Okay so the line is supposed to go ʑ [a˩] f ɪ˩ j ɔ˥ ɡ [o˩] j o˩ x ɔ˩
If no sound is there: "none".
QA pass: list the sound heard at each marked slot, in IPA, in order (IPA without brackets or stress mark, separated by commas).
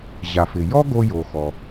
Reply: a˩, o˧